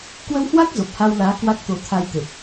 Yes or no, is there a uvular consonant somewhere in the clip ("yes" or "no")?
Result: no